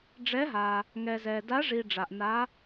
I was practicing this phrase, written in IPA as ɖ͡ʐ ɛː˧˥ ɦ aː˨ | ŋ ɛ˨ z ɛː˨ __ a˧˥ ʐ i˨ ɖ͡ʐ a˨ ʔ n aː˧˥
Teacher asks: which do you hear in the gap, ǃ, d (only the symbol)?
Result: d